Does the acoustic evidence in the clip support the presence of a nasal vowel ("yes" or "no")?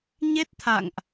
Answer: no